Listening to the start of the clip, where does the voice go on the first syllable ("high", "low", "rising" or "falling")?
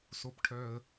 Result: low